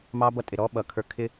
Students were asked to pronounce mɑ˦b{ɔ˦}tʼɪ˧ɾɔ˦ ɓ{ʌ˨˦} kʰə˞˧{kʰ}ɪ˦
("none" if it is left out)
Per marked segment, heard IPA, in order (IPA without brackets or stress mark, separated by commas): ʌ˦, ʌ˧, kʰ